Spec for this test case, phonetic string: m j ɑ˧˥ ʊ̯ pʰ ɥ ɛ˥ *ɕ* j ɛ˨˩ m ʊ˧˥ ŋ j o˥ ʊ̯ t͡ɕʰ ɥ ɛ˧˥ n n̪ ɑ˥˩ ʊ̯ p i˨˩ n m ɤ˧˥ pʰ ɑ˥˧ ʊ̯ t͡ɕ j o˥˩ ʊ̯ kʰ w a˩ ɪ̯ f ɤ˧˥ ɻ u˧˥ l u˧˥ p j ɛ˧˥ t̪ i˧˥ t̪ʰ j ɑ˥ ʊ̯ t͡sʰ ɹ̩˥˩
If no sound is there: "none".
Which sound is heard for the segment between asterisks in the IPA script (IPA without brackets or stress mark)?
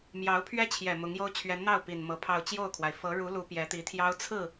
t͡ɕʰ